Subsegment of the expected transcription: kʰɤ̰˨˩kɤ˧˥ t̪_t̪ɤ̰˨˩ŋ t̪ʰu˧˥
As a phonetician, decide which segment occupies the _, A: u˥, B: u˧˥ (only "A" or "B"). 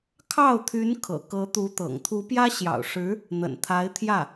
B